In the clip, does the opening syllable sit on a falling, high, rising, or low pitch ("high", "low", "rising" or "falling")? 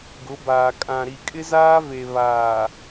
rising